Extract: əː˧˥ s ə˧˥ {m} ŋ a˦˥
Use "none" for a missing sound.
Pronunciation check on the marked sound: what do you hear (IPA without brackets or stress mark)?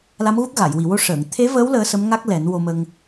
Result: m